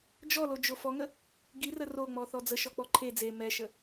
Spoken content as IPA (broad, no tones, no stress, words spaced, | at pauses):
d͡ʒɔlo d͡ʒofɔŋə | ɡirə roŋ͡mɔ θɔd͡zə ʃɔk͡pɔǃʰe d͡ze mɛʃə